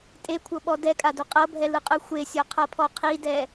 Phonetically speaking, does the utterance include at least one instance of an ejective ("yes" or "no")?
yes